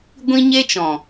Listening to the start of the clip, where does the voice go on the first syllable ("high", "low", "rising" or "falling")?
high